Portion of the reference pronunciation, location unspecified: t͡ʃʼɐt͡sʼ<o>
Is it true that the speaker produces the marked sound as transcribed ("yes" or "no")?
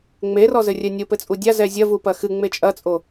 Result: yes